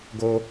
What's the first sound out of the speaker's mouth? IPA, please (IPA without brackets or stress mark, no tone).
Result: ɡ